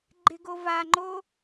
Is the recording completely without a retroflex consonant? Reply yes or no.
yes